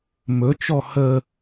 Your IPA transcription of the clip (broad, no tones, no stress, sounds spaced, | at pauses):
m ɵ t͡ʃ ɔ h ə